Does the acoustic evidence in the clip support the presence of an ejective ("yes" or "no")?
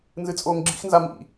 yes